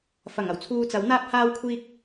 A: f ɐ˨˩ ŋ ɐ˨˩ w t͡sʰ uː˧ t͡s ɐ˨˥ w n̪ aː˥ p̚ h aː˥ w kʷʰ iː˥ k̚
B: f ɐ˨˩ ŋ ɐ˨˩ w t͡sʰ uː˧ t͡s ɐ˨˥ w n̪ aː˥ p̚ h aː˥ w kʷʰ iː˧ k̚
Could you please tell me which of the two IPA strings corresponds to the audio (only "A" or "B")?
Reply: A